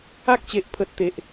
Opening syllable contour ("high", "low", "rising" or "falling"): high